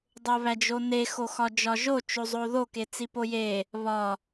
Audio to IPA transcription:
dˤ o β æ d͡ʒ o n e x o x ɒ d͡ʒ ɒ ʒ o t͡ʃ o zˤ o ð o k e t͡s i p o j e | β ɒ

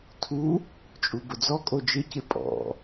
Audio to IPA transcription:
tʰ u | t͡ʃʼ u b ʊ d͡z ɔ kʼ o d͡ʒ ɪ c ɪ pʼ ɔ̰

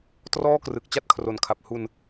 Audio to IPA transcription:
t r ɔː˥˩ k r ɯ˨˩ k̚ t͡ɕ a˥˩ t̚ kʰ r o˨˩ n kʰ a˨˩ p̚ h u˧ n

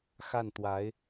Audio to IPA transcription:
x a˥˩ n t̪ w a˧˥ ɪ̯

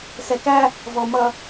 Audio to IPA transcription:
s ɛ k æ | v ɔ m ʌ

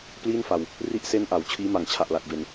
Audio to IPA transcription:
p l iː˥˩ n f a˨˩ w | r i˦˥ ʔ s e˦˥ n ʔ a˩˦ w t͡ɕʰ iː˦˥ m a˨˩ ŋ t͡ɕʰ a˨˩ ʔ l a˨˩ k̚ b e˨˩ n

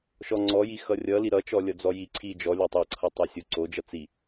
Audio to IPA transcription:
ʃ ɔ ŋ͡ǀ ɔ j i x ʌ rʲ ʌ l i ɾ ʌ t͡ʃ ɔ lʲ ʌ d͡z ɔ j i ǀʰ i d͡ʒ ɔ lʲ o tˤ ʌ ǀʰ ʌ tˤ ʌ sʲ o ǀ o d͡ʒ ʌ t͡s i

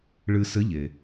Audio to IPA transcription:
ɭ ɨ˧ s ɘ˧˥ ʎ e˩

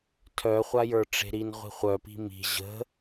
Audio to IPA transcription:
tʰ œ χʷ a j ə˞ ʈ͡ʂ e̤ ɾ i n ʁʷ i̤ χʷ œ p i̤ m i̤ ʑ ə̤

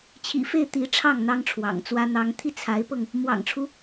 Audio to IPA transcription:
t͡ɕʰ ḭ˨˩ f e˥˩ ɪ̯ t̪ i˧˥ ʈ͡ʂʰ ɑ˥˩ ŋ n̪ ɑ˥ ŋ ʈ͡ʂʰ w ɑ̰˨˩ ŋ t͡s w ä˥ n̪ ɑ˥ ŋ t̪ʰ i˥˩ t͡sʰ a˧˥ ɪ̯ p ɤ˧ ŋ | m w ɑ̰˨˩ ŋ ʈ͡ʂʰ u˦

